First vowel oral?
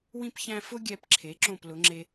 no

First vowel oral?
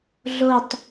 yes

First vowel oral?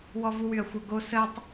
yes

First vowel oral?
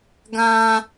no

